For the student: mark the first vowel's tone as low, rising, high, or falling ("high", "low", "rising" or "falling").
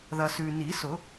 low